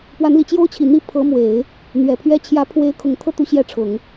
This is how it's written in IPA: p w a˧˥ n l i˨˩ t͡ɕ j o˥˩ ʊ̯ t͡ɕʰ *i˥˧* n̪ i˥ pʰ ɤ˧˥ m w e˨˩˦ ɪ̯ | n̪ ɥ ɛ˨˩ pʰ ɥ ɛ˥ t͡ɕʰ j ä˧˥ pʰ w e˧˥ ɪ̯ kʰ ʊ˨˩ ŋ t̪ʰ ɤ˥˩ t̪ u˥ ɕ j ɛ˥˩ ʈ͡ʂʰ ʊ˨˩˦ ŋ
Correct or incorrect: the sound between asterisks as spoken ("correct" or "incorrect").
incorrect